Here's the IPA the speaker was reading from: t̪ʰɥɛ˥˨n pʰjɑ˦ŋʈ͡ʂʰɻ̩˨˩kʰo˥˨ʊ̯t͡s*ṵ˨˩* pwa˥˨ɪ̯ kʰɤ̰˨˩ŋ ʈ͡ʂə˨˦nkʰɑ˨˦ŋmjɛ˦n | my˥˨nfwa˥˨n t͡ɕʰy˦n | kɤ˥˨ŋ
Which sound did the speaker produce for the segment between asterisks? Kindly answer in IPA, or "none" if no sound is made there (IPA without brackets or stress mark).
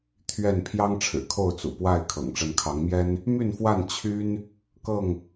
ṵ˨˩